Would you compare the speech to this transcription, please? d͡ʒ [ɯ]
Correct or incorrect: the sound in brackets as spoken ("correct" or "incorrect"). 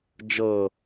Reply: incorrect